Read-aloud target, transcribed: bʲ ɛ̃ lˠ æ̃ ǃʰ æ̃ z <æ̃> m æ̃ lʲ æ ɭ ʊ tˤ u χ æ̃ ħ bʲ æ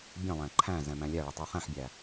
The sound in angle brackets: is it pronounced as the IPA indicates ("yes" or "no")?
no